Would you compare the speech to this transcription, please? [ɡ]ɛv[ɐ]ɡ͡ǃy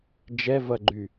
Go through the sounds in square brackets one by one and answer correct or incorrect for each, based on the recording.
incorrect, correct

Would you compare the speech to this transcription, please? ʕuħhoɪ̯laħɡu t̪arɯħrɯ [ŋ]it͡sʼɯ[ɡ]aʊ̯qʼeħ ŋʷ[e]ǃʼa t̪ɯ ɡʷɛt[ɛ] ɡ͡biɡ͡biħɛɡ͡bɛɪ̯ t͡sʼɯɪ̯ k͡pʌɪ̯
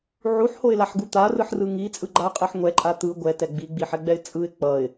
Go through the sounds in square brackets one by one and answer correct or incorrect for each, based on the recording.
correct, incorrect, incorrect, correct

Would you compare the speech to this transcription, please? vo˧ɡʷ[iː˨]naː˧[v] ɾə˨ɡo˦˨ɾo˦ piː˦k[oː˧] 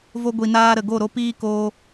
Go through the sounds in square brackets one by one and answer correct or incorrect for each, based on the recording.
incorrect, incorrect, incorrect

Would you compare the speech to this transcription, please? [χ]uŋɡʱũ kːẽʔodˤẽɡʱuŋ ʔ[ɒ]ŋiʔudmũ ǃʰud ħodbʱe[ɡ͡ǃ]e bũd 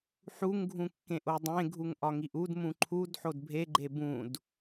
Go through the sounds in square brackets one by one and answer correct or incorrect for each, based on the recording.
incorrect, correct, correct

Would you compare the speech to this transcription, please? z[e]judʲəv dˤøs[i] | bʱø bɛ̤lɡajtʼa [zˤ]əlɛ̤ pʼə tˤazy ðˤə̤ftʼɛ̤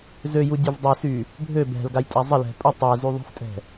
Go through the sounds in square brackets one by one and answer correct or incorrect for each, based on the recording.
incorrect, incorrect, correct

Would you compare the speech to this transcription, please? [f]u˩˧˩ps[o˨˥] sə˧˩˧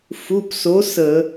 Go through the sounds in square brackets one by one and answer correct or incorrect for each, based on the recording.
correct, correct

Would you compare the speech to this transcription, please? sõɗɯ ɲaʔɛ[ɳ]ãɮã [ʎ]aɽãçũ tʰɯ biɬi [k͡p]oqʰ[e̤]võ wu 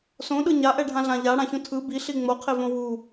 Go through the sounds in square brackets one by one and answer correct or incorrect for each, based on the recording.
incorrect, correct, incorrect, incorrect

